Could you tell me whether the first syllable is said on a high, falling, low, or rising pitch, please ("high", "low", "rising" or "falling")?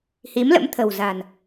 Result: rising